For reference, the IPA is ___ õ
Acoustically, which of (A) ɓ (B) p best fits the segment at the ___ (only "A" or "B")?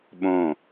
A